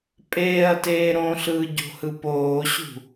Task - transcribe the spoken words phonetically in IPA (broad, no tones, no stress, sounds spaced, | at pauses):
pʼ eː ɐ̯ t eː ɾ õ ɬ ɯː ɟ o̤ h ɯ p oː ɕ ṳ